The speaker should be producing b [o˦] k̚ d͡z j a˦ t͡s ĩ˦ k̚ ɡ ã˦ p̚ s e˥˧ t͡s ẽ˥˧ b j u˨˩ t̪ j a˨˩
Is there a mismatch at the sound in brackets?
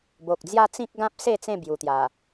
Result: yes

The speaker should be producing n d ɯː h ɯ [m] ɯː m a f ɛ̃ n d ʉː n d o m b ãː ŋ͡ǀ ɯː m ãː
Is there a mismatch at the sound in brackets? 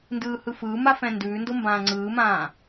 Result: yes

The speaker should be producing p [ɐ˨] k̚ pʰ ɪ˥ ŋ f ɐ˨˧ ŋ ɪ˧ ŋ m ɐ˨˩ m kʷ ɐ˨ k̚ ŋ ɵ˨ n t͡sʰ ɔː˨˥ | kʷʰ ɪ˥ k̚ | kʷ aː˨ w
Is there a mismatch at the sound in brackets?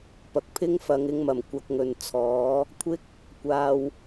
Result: no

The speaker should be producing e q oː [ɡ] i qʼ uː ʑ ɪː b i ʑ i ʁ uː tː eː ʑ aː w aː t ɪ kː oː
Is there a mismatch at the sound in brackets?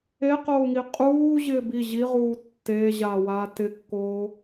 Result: yes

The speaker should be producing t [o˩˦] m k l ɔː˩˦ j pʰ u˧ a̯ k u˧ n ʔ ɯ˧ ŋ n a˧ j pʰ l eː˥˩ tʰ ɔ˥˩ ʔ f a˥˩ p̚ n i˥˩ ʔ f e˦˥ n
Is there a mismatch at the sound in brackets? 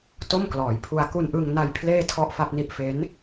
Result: yes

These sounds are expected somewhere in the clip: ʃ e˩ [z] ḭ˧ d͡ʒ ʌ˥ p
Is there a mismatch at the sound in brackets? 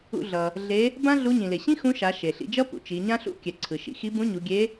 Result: yes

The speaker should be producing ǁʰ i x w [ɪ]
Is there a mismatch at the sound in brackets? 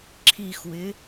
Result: no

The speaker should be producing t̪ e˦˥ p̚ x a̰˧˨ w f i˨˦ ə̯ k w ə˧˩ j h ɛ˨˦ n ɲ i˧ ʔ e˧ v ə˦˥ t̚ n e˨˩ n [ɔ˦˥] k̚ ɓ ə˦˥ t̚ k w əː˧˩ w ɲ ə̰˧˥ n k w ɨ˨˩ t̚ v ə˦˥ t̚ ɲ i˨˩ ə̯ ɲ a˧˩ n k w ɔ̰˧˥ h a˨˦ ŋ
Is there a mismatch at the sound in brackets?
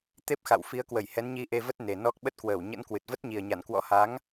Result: no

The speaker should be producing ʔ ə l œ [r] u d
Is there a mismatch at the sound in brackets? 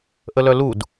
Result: yes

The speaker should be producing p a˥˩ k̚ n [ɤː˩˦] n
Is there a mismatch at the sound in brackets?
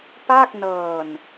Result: yes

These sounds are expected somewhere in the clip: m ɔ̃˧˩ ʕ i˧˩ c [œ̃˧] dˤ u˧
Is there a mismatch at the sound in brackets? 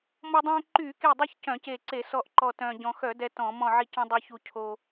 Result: no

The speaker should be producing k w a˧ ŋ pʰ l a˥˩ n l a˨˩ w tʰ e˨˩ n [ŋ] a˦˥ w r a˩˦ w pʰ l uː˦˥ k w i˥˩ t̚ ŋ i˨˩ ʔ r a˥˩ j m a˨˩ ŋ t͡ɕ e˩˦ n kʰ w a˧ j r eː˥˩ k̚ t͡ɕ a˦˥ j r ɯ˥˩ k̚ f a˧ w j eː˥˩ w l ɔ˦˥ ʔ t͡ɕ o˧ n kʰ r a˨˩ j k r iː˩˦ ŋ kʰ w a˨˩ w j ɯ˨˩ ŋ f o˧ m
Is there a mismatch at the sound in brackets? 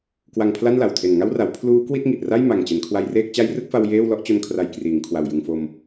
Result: no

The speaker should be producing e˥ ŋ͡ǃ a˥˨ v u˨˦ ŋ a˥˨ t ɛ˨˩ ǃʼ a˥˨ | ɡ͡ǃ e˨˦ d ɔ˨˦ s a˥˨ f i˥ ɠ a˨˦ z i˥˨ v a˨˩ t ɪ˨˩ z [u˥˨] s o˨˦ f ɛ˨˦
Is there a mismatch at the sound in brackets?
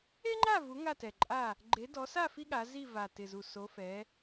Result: yes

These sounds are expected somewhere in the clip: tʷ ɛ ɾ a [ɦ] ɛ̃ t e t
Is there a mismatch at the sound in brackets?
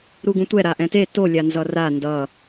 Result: yes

